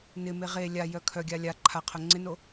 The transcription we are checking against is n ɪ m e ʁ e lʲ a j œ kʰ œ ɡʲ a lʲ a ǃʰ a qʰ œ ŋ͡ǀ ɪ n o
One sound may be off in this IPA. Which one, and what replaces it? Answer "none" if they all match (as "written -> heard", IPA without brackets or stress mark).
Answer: none